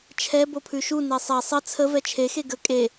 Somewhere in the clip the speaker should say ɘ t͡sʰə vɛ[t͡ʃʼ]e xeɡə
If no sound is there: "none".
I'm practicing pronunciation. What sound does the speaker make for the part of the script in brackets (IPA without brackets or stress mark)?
t͡ʃʰ